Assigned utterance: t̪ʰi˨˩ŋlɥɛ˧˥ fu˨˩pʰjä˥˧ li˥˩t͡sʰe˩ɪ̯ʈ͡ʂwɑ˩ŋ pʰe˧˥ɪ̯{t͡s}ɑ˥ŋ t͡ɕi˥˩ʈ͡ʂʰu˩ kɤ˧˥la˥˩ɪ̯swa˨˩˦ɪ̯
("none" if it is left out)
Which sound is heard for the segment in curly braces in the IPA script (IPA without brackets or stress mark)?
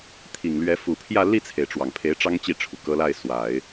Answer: ʈ͡ʂ